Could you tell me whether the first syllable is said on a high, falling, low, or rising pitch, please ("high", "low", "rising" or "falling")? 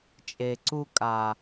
low